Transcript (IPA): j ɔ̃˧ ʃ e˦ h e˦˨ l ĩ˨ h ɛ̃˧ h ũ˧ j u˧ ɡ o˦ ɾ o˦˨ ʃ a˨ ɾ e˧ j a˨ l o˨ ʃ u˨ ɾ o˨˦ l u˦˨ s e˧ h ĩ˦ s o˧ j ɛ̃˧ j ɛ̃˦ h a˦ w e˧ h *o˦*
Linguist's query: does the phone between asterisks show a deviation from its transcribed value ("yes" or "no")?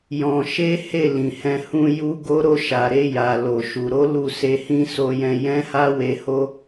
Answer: no